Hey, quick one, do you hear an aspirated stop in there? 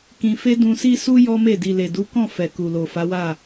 no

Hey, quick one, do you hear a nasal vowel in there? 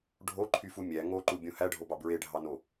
yes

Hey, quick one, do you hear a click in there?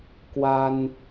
no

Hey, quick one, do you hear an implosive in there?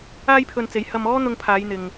no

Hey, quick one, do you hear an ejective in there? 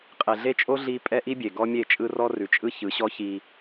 yes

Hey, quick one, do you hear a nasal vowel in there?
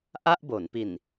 no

